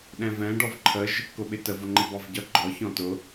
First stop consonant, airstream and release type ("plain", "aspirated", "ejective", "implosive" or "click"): implosive